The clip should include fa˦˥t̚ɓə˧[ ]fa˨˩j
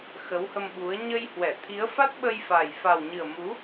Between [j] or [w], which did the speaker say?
j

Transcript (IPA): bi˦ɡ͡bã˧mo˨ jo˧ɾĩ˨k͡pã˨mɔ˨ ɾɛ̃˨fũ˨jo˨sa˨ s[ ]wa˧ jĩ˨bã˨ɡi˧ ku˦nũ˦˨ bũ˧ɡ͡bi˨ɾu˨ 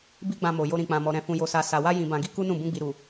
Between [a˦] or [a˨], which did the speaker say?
a˨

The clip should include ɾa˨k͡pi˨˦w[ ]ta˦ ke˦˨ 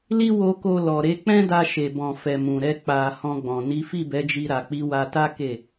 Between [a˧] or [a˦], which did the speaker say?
a˧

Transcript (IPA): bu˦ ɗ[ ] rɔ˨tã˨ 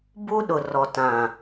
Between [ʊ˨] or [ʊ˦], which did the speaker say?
ʊ˨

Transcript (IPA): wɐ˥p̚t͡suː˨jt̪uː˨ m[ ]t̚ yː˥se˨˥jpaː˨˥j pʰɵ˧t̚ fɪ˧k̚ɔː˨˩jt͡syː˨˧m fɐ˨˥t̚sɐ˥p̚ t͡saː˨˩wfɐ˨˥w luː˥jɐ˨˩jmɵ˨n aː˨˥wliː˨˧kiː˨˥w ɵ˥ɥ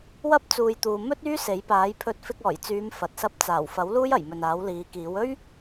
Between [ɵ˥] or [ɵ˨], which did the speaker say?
ɵ˥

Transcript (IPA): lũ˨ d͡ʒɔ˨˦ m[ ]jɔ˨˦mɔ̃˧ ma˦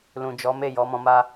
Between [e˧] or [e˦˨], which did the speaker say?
e˦˨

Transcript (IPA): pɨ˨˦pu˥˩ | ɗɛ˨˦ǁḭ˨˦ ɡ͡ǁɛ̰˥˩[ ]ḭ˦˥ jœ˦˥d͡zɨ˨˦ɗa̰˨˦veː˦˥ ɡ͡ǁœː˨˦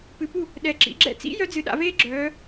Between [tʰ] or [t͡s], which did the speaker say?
t͡s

